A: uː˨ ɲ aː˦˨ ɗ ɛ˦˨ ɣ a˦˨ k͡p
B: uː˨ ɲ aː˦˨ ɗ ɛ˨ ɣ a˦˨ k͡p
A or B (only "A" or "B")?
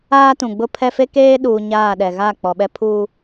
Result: B